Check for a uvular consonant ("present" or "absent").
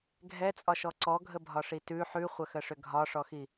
present